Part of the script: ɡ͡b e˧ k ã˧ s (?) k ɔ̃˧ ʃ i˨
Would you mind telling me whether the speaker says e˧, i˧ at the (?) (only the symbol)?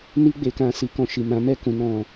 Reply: i˧